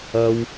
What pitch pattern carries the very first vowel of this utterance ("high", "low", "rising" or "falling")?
high